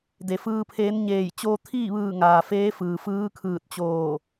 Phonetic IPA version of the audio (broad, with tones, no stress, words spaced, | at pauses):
de˩fɯː˧pʰeː˧˥nɲeː˧˩j t͡ɕoː˧t̪ʰiː˥˨ʋɯː˧˩ ŋaː˩feː˧˥fɯː˩fɯː˧˥ kʰɯː˧˩t̚t͡ɕoː˧˩